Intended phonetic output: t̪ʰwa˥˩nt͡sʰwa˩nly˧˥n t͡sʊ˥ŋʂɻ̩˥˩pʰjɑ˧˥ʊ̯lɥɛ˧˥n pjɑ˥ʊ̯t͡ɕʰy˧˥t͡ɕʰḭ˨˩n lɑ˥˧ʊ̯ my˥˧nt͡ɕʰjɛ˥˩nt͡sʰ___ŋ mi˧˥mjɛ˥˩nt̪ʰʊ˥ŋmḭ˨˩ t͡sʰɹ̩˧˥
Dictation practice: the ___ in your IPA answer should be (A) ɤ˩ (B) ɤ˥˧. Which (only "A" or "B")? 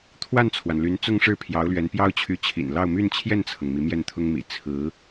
A